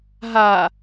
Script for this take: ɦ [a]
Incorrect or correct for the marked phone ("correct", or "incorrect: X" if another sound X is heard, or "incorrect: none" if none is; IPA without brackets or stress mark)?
correct